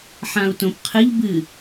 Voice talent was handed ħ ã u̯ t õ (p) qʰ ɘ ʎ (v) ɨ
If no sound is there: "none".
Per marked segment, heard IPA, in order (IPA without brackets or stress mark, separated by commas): p, b